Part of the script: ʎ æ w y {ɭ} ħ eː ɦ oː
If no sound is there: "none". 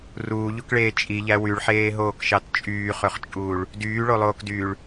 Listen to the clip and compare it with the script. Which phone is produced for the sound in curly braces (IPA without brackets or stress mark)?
ɭ